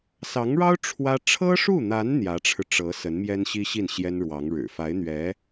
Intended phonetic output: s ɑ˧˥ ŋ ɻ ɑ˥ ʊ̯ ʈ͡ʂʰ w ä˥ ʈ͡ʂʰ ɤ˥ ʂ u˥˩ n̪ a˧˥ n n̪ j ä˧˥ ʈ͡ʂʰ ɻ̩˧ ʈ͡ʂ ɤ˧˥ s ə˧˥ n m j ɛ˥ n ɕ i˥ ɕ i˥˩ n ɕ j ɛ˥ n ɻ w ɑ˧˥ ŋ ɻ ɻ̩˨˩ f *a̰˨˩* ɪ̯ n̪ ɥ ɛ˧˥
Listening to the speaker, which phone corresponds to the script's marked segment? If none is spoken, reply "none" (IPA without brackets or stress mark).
a˧˥